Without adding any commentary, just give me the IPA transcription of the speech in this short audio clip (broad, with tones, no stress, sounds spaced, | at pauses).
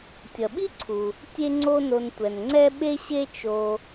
tʲ ʌ˩ ɓ i˥ ǀʰ u˩ | tʲ e˥ ŋ͡ǀ o˥ n o˧ n tʷ ɛ˩ n ŋ͡ǀ ɛ˥ ɓ e˥ ɕ e˥ t͡ʃ o˧